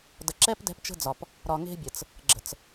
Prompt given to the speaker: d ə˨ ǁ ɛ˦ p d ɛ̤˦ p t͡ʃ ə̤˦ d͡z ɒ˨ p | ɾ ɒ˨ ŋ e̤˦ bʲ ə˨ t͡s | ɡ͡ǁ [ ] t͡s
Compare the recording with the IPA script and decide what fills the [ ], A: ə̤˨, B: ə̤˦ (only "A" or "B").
A